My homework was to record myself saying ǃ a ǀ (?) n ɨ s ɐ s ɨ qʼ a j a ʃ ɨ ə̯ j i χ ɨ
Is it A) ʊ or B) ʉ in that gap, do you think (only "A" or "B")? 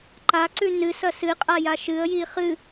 B